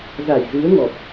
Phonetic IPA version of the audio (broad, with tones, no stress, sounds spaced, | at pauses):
z a˧˩ j z ɨ˨˦ ə̯ ŋ ɔ˨˩ p̚